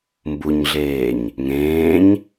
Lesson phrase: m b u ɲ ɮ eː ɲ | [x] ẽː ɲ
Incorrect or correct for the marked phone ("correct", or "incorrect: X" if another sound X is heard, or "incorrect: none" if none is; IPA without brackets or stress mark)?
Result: incorrect: ŋ